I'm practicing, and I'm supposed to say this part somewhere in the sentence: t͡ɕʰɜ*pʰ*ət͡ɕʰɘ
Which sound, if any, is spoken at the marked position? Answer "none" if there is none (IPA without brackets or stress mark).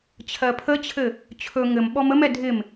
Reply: pʰ